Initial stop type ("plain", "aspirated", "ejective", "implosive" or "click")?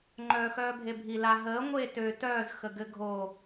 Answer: click